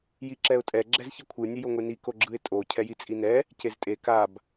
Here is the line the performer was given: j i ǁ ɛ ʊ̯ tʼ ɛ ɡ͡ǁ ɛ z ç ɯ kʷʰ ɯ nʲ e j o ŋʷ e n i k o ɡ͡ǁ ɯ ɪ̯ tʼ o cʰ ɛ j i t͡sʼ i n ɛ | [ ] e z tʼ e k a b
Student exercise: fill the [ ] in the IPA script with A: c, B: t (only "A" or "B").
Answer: A